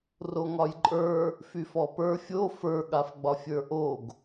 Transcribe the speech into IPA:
r o ŋ ɒ j ǃʼ ə˞ | f y f ɔ p ə˞ fʲ o f ə˞ ɠ a f ɡ͡b ɒ fʲ ə˞ ʔ o ɡ

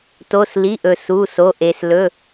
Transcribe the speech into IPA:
t o˩˧˩ s l i˩˧˩ ʔ ɵ˩ s u˩˧˩ s o˩˧˩ ʔ e˩ s l ɵ˩˧˩

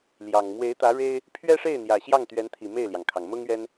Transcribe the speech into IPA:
l j ɑ˨˩ ŋ m w e˧˥ ɪ̯ t̪ ä˧˥ ɻ e˥ ɪ̯ | pʰ ɥ ɛ˥ ʂ e˥˩ ɪ̯ n̪ j ä˨˩ ɕ j ɑ˥˩ ŋ t̪ ɥ ɛ˧˥ n t̪ʰ i˨˩ m e˥˩ ɪ̯ l j ɑ˩ ŋ kʰ ɑ˩ ŋ m ʊ˥ ŋ ɥ ɛ˥ n

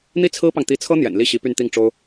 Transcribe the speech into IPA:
n̪ i˥ t͡sʰ ɹ̩˥ p ɑ˨ ŋ t̪ i˧˥ t͡sʰ ɤ˥ n̪ j ɛ̰˨˩ n l i˥˩ ɕ i˧˥ p y˥˧ n t̪ i˥˩ ŋ ʈ͡ʂ o˥ ʊ̯

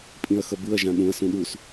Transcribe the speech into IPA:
pʼ ĩ ɐ̯ x ʌ b ɯ ɐ̯ ʒ ã ɗ ũ ɐ̯ s ũ ɗ u s

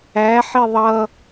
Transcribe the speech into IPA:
æ ħ i ðˤ ʌ

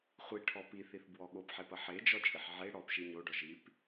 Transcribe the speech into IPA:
χʷ i ʈʰ ɔ p i θ i θ b w ɔ ɠ o p ħ e p ɐ ħ e d͡ʒ ɔ t͡ʃʼ i ħ ʕ e ɽ ɔ p ʃ i ɲ o ɖ ɔ ʒ i p

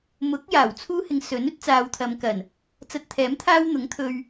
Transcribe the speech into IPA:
m ʊ˨˥ k̚ j aː˨˩ w t͡sʰ uː˥ h ɪ˧ ŋ s ɵ˨˥ n ɵ˥ t̚ t͡s aː˨˧ w t̪ʰ ɐ˨˧ m k ɐ˨˩ n | t͡s ɐ˧ t̚ t̪ʰ ɛː˨˥ m t̪ʰ aː˥ w n̪ ʊ˨˥ ŋ t̪ʰ ɵ˧ ɥ

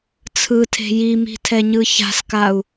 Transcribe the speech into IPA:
t͡sʰ ɯ tʰ e̤ j i m i̤ tʰ ɛ ɲ ɯ ç a̤ s k a u̯

